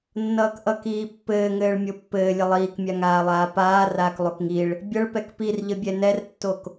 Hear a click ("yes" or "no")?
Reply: no